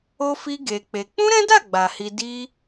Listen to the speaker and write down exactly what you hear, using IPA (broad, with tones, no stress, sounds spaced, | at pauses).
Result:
o˦ f i˦ ɡ e˧ k͡p e˧ k͡p ũ˦ ɾ ɛ̃˦ d a˦˨ ɡ͡b a˨ h i˧ d i˦